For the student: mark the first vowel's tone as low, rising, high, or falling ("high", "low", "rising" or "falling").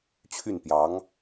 falling